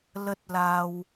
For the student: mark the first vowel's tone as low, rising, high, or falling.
high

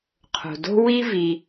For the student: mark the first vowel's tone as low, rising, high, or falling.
low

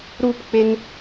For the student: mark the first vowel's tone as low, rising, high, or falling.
falling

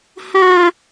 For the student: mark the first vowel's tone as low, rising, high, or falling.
high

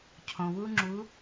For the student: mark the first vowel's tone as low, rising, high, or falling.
low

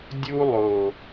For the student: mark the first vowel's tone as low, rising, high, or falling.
high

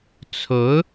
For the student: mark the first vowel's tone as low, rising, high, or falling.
rising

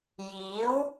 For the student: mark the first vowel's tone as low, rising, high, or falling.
rising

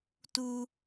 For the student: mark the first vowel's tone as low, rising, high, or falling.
high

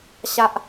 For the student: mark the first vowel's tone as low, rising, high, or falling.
high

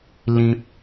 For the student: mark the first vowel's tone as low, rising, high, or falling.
high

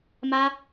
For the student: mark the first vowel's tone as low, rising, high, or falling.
high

